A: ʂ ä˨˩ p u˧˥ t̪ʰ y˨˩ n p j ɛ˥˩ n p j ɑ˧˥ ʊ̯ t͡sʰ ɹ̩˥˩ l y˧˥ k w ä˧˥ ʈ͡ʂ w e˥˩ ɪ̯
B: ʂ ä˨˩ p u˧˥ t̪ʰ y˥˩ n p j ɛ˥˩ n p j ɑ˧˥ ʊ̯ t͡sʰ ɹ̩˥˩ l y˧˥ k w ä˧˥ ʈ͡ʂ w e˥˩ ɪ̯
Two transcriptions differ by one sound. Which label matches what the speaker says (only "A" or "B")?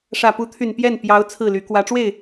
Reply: A